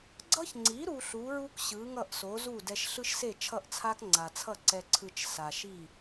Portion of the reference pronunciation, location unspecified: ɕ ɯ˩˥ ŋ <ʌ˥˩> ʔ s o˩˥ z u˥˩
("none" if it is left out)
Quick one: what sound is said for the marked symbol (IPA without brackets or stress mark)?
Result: ʌ˥˩